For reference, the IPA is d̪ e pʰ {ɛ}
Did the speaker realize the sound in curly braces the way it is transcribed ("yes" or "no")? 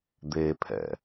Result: no